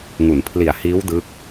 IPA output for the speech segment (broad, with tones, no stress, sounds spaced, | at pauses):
ŋ u˩˦ n pʰ l i˨˩ a̯ h iː˦˥ w d ɯ˦˥ k̚